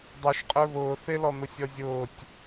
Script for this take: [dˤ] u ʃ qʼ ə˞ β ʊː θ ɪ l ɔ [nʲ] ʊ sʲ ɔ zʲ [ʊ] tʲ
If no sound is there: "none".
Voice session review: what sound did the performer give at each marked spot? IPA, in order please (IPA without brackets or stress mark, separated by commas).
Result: dˤ, n̪, ʊː